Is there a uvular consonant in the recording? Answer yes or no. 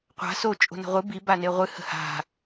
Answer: yes